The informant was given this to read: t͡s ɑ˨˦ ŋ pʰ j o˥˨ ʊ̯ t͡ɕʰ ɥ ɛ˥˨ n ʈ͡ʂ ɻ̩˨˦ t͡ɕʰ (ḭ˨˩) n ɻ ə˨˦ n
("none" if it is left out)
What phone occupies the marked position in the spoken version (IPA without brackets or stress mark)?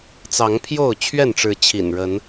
ḭ˨˩